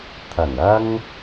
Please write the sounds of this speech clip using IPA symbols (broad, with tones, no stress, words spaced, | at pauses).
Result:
t̪ʰɐ˨˩nɐ˧ŋ